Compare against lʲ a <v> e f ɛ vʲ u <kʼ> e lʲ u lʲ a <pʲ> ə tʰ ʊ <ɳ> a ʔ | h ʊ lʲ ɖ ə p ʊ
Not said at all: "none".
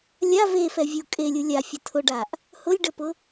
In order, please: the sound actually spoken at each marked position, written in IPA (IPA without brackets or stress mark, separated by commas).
v, kʼ, fʲ, ɖ